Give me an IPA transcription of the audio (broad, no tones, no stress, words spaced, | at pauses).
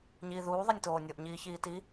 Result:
ɲiːðuː ðˤɛnʲtoːnʲoʔ ɲiːçiːti